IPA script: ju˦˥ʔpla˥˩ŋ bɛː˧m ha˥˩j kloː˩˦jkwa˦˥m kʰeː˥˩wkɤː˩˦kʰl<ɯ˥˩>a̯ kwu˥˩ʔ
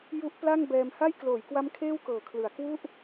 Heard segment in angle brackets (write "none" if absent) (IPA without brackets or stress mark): ɯ˩˦